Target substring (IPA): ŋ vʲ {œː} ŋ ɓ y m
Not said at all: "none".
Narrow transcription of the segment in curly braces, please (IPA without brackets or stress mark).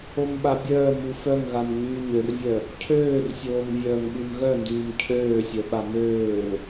œː